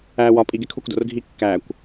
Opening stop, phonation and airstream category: ejective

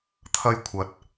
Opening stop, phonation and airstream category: aspirated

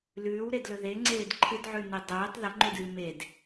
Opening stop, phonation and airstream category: plain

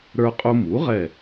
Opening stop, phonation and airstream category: ejective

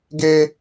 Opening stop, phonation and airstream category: plain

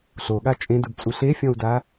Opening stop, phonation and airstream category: implosive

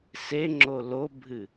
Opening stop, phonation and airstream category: click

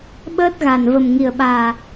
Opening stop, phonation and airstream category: implosive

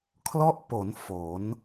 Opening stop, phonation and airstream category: aspirated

